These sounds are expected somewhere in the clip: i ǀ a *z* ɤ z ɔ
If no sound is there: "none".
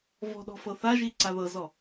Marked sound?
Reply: ð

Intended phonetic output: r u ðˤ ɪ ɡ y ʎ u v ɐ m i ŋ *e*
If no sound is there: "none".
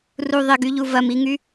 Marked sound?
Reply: y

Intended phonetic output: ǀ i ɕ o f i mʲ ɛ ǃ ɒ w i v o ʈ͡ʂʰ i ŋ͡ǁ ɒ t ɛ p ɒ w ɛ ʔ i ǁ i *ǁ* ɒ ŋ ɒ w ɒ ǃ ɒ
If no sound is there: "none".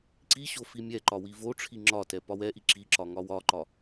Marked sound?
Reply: ǁ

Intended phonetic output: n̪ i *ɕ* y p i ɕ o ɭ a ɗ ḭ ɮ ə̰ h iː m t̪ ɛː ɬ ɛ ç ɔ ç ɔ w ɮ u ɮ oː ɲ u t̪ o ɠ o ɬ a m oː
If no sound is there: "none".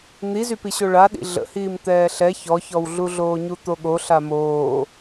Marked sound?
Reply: z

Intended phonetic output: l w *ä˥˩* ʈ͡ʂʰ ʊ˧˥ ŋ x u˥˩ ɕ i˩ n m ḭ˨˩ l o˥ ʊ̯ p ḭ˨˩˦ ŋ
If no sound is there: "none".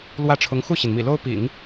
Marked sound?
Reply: ä˥˩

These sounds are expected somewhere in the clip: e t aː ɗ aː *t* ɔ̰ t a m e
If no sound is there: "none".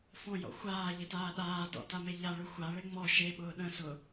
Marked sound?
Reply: t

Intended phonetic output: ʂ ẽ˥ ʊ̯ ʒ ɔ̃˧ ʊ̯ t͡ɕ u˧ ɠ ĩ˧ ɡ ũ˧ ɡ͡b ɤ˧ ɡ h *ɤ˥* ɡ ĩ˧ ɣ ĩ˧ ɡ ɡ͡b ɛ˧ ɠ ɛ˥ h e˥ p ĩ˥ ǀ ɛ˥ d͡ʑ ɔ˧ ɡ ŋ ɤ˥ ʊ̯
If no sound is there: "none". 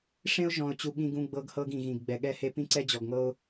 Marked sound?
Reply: ɤ˥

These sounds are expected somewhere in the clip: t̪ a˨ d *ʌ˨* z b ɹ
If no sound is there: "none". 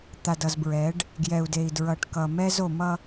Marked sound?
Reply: ʌ˨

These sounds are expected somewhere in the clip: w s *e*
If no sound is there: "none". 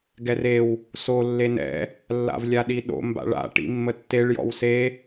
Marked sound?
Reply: e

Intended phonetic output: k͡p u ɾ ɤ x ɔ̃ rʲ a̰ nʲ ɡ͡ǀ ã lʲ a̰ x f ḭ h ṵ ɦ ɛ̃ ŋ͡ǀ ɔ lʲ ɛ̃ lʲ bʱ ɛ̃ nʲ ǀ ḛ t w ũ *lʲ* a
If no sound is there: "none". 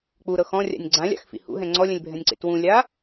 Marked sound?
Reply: lʲ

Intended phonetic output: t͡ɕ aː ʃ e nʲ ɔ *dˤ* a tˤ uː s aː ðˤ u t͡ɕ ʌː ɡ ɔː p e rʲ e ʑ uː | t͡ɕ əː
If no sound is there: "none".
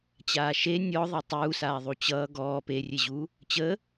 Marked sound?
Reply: ðˤ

